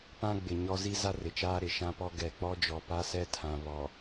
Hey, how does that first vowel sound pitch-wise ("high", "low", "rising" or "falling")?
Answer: high